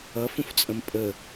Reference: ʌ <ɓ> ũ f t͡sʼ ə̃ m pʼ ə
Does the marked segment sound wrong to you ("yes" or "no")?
yes